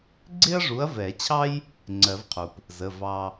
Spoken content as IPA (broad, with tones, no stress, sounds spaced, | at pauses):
ɡ͡ǀ ɪ˥ ɐ̯ ʐ u˨˥ ɐ̯ v ɛ˨˩˦ t͡ɕʰ ɑ˥ j | ŋ͡ǀ ɜ˨˩˦ v qʰ u˩ p | z ə˩˧˩ v ɑ˧